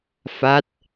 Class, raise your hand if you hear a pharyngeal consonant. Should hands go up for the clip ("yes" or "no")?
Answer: no